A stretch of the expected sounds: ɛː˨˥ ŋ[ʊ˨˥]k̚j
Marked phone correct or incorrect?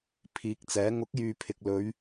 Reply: correct